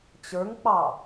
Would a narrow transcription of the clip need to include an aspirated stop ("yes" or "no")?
no